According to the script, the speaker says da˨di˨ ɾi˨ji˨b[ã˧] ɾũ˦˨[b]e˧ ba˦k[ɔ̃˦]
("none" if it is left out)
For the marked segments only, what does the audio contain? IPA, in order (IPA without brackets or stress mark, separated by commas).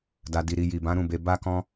ã˨˦, b, ɔ̃˦